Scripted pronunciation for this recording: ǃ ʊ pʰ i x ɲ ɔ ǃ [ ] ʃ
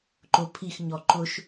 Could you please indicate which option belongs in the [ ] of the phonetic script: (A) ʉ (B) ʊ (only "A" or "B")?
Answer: B